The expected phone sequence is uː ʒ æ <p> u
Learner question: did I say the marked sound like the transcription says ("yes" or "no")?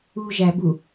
no